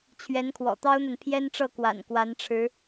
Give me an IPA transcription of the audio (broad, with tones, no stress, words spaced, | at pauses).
t͡ɕʰɥɛ˧˥nkʰwɔ̰˨˩t̪ɑ˥ʊ̯n̪a˨n pʰjɛ˥nʈ͡ʂɤ˥˩kwa̰˨˩n kwa˧˥nʈ͡ʂʰɻ̩˧˥